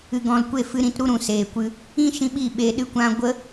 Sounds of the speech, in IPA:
ɨ˨ ɡ ɔ̃˨ l kʷ e˦˨ f ɨ˧ ɾ ĩ˧ t ɾ u˦ ɾ ũ˨ s eː˨ kʷ ɨ˧ | ĩ˦ ʃ ĩ˧ ɓ i˦˨ ɓ e˧ ɗ ɨ˦ kʷ ã˦ ɡʷ ə˦

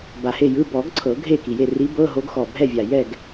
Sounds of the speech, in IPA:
b a˨˩ h e˥˨ j ɯ˧˥˧ b ɔ˨˩˦ ɡ ǀʰ ɤ˨˩˦ ɡʱ e˥˨ k i˨˩ j e˥˨ r i˧˥ b ɤ˧˥˧ ɦ o˧˥ ɡ x ɔ˨˩ bʱ ɛ˥˨ vʲ a˨˩ j ɛ˥˨ ɡ

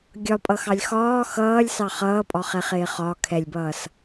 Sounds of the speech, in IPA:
ɡʲ ɒ pʼ ʌ x ɑ lʲ x ɒː x ʌː lʲ s ɑ χ ʌː pʼ ɒ χ ɛ χ ɪː χ ɒ kʰ ɛ lʲ b ʌː s

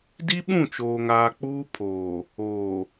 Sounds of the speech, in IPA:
d i˦ ɓ ũ˦˨ t͡ʃ oː˨ ŋ aː˨ k͡p uː˦ pʰ oː˨ | oː˨

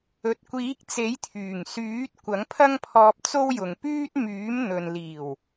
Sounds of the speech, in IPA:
ɵ˨ t̚ kʷ iː˨˥ k̚ t͡s e˨˥ j t̪ʰ yː˨˩ ŋ s yː˨˥ t̚ kʷ ɐ˨˥ ŋ pʰ ɐ˥ ŋ pʰ ɔː˧ p̚ t͡s o˥ w j ʊ˨ ŋ p yː˥ t̚ m yː˨˥ m n̪ ɵ˨ n l iː˨˩ w

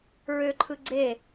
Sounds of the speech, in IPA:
ɹ ø ǃʰ ɯ ɡ͡ǀ e

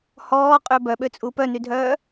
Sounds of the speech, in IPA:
h ɔː qʼ ø b œ ɓ ø t͡sʼ u p œ n y dʱ œː

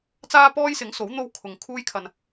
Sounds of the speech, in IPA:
t͡s aː˥ p ɔː˥ j s ɪ˨˥ ŋ s o˨˥ w n̪ o˥ w kʰ ʊ˨ ŋ kʰ uː˥ j kʰ ɐ˧ n

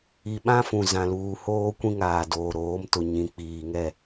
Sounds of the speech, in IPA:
i˨ ɓ ã˦ f ũ˨ z ã˨ l uː˨ h oː˦ kʷ ĩ˦ ŋ aː˨ d oː˨ ɾ oː˨˦ m t ʊ˨ ɲ ĩ˨ k͡p iː˨ ŋ ɛ˦˨

